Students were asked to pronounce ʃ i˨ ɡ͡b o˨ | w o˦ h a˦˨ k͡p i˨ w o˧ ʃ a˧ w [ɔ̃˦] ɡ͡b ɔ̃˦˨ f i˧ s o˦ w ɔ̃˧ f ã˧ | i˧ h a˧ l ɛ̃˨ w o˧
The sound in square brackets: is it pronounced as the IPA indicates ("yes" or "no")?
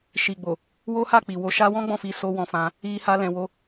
yes